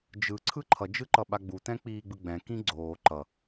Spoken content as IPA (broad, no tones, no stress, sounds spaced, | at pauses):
d͡ʒ ɯ ǀʰ ɯ ǃʰ ʌ d͡ʒ ɯ ǃ ʌ ɓ a ɡ͡b u t ɛ̃ k͡p iː ɡ͡b ɯ ɡ͡b ɛ̃ k ĩ ɡ͡ǀ oː ǃ ʌ